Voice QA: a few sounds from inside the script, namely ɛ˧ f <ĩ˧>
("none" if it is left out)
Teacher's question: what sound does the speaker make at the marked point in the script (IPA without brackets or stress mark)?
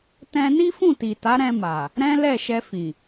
ĩ˨